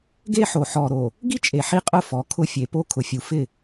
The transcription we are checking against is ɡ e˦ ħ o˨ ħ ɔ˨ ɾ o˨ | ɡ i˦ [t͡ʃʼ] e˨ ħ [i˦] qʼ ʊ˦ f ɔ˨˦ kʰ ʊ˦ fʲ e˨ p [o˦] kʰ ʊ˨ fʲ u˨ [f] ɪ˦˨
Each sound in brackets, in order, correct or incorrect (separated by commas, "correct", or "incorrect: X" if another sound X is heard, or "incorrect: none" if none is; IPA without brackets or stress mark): correct, correct, correct, correct